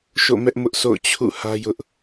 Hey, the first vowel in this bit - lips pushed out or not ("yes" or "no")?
yes